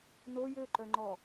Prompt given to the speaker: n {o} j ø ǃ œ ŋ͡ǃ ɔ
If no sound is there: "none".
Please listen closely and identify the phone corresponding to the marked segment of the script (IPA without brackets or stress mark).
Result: o